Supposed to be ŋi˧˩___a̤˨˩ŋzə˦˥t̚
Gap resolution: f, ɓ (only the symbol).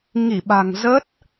ɓ